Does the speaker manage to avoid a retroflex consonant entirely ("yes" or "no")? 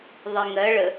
no